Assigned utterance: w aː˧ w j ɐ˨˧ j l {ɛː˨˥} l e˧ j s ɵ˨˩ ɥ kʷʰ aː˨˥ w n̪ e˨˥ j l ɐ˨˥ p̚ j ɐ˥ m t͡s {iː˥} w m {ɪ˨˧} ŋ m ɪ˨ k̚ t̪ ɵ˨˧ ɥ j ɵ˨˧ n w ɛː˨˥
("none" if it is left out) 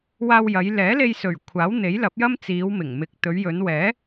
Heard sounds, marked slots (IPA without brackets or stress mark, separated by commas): ɛː˨˥, iː˨˧, ɪ˨˩